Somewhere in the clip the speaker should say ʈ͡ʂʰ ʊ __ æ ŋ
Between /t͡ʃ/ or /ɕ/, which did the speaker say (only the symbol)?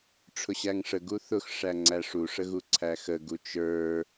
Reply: ɕ